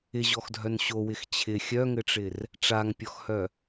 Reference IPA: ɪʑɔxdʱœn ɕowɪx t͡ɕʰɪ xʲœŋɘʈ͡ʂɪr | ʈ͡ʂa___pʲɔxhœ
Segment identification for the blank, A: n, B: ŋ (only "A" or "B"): B